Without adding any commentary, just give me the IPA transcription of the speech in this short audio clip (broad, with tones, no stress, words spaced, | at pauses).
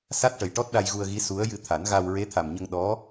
sa˦˥t̚ʈə˨˩jʈɔ˦˥t̚ ɗa˧jɣu˧ə̯ɣi˧˥ su˧˥ə̯ jɨ˧t̪ʰa˨˩˦n ɣa˧w ɹe˧˥t̪ʰa˨˩mɲə˧ŋ ɗɔ˧˥